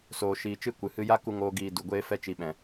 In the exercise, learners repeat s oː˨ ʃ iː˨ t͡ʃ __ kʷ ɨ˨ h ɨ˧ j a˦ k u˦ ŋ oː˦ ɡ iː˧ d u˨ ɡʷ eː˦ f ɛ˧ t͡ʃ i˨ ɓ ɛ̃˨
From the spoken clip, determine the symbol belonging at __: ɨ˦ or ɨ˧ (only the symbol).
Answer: ɨ˦